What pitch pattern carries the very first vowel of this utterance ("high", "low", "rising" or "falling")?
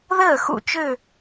falling